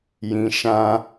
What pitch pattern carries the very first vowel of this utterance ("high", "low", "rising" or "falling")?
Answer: low